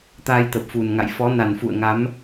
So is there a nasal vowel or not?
no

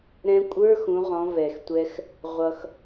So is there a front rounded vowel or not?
no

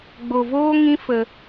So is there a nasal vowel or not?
yes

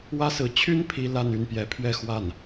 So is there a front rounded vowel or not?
yes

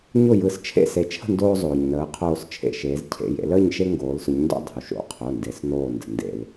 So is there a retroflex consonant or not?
no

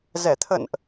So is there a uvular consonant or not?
no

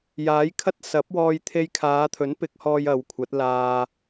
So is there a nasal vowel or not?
no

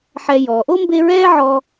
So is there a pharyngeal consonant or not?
yes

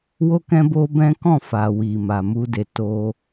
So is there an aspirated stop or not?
no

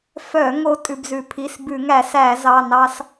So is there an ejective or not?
yes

